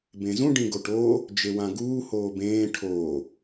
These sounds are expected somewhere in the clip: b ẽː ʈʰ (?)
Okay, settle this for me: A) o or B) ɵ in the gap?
A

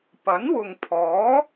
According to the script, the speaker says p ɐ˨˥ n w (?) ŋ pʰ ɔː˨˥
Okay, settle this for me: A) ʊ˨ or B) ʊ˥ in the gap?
A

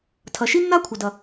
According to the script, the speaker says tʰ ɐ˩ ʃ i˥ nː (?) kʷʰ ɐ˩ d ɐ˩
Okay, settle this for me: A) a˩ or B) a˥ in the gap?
B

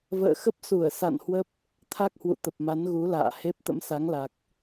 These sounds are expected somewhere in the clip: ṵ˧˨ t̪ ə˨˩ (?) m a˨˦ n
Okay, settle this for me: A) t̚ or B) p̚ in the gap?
B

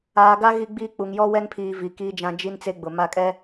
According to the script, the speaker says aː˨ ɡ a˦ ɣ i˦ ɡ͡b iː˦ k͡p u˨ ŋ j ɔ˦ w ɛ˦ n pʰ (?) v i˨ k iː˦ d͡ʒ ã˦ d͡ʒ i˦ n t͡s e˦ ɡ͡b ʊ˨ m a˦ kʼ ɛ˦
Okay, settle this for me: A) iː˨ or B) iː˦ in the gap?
A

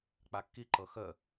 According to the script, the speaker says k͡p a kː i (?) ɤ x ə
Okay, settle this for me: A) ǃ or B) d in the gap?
A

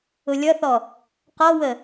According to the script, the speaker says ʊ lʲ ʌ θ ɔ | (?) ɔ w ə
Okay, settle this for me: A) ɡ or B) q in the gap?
B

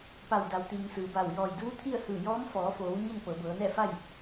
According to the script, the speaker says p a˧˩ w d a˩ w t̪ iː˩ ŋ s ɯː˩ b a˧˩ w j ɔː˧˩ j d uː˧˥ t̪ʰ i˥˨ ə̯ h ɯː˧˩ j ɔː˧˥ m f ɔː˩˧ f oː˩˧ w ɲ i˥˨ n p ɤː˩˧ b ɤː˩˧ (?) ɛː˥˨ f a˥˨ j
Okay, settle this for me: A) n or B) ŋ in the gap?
A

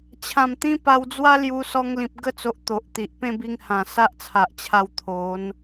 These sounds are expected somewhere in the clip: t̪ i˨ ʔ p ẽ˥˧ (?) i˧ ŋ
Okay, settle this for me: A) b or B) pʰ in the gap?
A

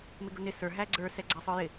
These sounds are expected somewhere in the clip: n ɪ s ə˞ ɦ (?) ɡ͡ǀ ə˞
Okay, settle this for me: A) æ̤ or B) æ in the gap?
B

